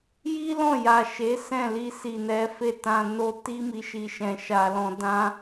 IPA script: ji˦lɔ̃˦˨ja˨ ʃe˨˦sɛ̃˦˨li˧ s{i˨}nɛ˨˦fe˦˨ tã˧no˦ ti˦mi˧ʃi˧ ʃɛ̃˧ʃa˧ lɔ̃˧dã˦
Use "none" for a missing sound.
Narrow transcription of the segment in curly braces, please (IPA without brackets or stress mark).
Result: i˨